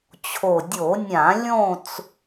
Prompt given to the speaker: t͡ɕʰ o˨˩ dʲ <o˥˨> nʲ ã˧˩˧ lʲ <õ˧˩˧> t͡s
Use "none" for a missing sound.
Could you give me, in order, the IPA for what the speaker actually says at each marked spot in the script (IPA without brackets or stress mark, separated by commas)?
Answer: o˧˩˧, õ˥˨